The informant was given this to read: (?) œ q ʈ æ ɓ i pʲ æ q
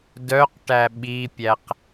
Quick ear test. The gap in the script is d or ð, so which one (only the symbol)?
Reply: d